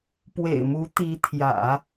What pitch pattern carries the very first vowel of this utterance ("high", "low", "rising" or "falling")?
low